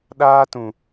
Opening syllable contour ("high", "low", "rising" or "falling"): high